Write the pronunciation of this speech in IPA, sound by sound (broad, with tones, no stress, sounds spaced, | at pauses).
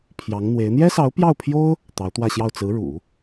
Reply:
pʰ j ɑ˧˥ ŋ n̪ w e˧˥ ɪ̯ n̪ j ɛ˥ s ɑ˧˥ ʊ̯ p j ɑ˥˩ ʊ̯ pʰ j o˥ ʊ̯ | t̪ ɑ˧˥ ʊ̯ t̪ w ä˥˧ ɕ j ɑ˥˩ ʊ̯ t͡s ɹ̩˧˥ ɻ ṵ˨˩˦